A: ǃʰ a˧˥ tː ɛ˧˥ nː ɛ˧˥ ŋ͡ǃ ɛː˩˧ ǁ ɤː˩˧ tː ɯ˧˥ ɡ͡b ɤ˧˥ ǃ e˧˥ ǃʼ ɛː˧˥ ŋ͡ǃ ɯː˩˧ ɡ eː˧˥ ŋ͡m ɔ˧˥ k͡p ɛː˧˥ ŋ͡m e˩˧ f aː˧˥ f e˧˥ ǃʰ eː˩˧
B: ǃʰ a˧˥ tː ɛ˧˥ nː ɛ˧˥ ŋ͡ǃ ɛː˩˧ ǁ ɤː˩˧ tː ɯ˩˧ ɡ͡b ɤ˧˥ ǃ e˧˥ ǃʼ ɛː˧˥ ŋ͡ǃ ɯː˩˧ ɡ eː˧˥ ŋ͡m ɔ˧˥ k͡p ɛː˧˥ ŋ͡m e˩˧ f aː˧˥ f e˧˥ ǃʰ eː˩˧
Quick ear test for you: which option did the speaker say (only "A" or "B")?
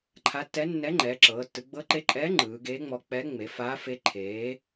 B